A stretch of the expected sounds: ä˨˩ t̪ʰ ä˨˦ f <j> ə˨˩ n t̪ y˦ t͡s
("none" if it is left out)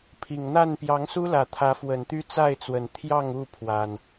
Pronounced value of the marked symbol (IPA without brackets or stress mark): w